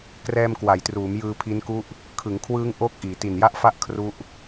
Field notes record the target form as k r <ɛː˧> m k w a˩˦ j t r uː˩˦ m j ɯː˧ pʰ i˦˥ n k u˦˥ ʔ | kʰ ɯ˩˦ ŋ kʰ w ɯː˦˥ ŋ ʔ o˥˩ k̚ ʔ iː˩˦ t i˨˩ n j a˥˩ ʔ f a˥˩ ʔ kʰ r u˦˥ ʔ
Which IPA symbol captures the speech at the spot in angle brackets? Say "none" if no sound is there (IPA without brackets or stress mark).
ɛː˧